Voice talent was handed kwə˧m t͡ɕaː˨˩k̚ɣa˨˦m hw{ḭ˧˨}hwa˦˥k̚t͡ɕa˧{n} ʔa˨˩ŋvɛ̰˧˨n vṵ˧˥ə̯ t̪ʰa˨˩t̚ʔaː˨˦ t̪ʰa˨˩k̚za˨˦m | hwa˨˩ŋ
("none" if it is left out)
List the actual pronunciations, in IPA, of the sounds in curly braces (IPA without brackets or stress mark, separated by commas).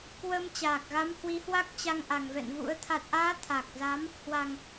i˨˦, ŋ